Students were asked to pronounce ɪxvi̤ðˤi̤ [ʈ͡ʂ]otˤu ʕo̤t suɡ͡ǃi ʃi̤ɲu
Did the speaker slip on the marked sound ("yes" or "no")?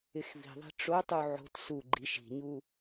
no